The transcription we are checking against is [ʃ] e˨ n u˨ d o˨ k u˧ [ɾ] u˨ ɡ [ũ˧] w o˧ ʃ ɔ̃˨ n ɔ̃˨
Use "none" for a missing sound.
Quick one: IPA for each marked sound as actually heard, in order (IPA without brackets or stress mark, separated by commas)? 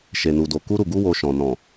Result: ʃ, ɾ, u˧